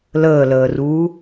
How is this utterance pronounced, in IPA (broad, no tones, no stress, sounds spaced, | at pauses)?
l əː l əː r uː